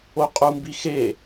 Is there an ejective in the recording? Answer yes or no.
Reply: yes